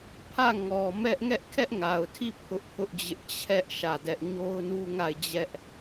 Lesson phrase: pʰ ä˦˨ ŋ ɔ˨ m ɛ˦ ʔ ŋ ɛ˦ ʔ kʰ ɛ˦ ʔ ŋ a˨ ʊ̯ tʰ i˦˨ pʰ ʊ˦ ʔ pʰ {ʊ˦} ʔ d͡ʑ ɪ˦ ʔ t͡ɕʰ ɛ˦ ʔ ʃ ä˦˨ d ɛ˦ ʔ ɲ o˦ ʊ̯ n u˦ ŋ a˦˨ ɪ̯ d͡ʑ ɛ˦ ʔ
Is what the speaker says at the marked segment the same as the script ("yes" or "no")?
yes